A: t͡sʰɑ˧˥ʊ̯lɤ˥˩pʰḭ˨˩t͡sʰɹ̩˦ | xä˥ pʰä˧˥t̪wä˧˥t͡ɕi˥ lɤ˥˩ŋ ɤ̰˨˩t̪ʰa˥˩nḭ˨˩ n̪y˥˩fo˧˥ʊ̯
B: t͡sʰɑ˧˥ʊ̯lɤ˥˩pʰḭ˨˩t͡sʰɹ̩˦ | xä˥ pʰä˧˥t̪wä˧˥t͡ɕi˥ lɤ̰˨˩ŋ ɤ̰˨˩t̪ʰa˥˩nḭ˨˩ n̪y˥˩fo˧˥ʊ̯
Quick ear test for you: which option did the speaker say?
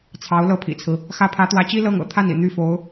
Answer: A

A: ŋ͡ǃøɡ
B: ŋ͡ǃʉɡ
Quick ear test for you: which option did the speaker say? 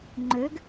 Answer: A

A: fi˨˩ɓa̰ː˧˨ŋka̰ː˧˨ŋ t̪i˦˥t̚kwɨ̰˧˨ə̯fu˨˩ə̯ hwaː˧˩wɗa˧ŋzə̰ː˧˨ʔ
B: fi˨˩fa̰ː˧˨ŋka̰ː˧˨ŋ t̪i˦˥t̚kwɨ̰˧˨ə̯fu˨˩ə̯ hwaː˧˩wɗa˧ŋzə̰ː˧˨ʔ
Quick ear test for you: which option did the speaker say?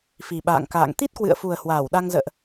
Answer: A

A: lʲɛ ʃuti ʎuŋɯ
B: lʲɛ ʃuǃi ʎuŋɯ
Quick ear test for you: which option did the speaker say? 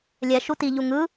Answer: A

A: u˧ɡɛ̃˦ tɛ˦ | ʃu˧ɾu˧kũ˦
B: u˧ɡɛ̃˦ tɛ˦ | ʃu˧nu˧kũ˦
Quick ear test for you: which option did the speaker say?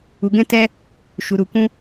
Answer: A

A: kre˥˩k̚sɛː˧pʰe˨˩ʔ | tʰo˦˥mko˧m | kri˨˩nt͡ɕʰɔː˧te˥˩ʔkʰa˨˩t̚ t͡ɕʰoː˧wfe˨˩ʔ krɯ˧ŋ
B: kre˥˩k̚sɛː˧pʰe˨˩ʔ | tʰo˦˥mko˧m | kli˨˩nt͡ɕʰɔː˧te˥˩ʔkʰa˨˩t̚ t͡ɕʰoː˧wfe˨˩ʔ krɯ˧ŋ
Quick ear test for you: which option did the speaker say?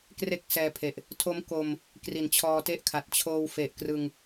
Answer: A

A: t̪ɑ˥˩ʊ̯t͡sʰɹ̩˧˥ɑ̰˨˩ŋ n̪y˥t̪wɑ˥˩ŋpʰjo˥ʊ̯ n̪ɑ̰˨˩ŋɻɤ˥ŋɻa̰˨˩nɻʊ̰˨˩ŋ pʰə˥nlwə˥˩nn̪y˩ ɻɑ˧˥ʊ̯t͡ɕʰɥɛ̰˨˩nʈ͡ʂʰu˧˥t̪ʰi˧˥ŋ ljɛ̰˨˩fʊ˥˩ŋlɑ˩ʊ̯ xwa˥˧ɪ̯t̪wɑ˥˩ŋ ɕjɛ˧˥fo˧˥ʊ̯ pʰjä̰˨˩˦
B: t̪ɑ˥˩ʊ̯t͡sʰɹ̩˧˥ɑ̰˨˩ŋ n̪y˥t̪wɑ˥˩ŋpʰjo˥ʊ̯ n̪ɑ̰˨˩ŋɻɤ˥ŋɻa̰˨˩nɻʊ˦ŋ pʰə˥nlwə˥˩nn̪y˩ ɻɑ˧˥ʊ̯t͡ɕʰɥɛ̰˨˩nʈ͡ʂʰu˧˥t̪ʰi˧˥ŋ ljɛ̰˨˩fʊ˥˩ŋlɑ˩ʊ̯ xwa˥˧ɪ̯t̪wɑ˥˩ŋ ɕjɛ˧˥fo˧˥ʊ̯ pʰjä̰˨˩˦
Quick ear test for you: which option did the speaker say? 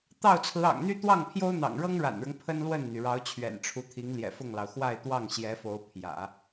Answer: B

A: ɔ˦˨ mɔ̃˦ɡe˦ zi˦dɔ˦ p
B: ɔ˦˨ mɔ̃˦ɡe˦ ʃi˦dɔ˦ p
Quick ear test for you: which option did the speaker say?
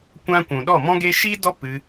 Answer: B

